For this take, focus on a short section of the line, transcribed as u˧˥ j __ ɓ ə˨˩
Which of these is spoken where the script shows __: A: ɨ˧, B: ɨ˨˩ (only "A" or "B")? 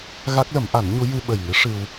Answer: A